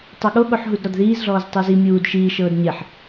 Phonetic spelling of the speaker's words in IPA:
tˤ ɤ ɠ o ɠ o ħ ɦ u d ɾ ɔ d ð iː z ɮ ɔː z tˤ ɯ z i mʲ uː d ʃ iː ʃ ɤː d ɲ e ħ

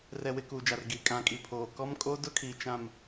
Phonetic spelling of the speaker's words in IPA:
r ɛ˨ w ɪ˨ k uː˨ d͡ʒ a˨ r ɡ iː˨ kʼ ã˨ kʼ i˨ pʰ oː˨ k ɔ˦ m kʼ oː˦ d ʊ˦ kʰ iː˨ t͡ʃ ã˨ m

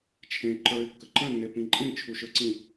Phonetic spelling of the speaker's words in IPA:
t͡ʃʰ ẽ ǃ ə˞ ɪ̯ kː ə ǃ ə̃ nː e p ĩ ǃʼ ĩ t͡ʃʰ u ʃ ə˞ ǀ ĩ

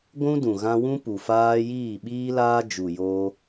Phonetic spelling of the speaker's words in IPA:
ɡʷ ũ˦ d ũ˨ ɣ ã˧ w ũ˦ p u˨ f aː˦ j iː˦˨ ɓ iː˦ l aː˦ d͡ʒ u˨ j oː˧

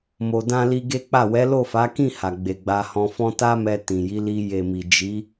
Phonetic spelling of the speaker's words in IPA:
m o˧ d ã˦ l i˧ ɡ e˦ k͡p a˦˨ w ɛ˨˦ l o˦˨ f a˨˦ k ĩ˦˨ h a˨ ɡ͡b e˨ ɡ͡b a˧ h ɔ̃˧ f ɔ̃˦ t a˦ m ɛ˧ t ĩ˨ j i˨˦ l i˧ j e˨ m i˨ d͡ʒ i˨˦

